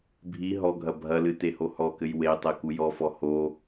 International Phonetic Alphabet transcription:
bʱi ɦɔɡʱɐ bʱɐlɨ tehohɔkɘj wetˤɛ kujɔfɔ ho

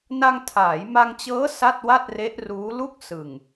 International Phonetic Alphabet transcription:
na˧ŋtʰaː˩˦jma˧ŋt͡ɕɤː˦˥ sa˥˩t̚wa˥˩t̚re˦˥ʔruː˦˥ lu˦˥k̚ sɯ˨˩ŋ

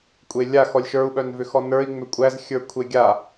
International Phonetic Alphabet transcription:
kʷʼelʲax ɔlʲʃə˞u̯ɓœnvʏ xɔnə˞i̯ ŋ͡mʏkʷʼæz xʲə˞kʷʰeɡʲa

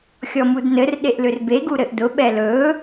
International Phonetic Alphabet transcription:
xʲɔmudnɘr ɗeʔlʏrbe ɡuɾɘʔdʊ ɓɛlɵ

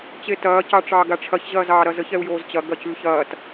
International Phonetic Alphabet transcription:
t͡ɕetɐː cɑʈ͡ʂɑːɡaʈ͡ʂʰɐç ʑɐːzɑːɾɐzəç ɛu̯joːzt͡ɕɐ ɡɐcʉçɐːt

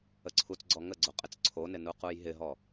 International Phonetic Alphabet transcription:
əǀʰut͡sɡ͡ǀɔ ŋəɡ͡ǀo qʼɪt͡sǀʰonɪ nuqujɦɪɦɔ

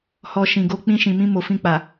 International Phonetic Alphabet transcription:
hɔ˧ ʃĩ˨ɡo˧ k͡pĩ˧ʃĩ˨mĩ˧ mo˨fĩ˧k͡pa˨

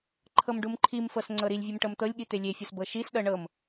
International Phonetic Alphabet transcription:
ǃʰɤmɖumǃʰimfɤs ŋ͡ǀɤɾilʲvʲum ʈɤmt̪ɤlʲɠi t̪elʲefʲɤs bɤʃisɗɤ ɳɤm

